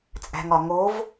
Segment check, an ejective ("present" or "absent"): present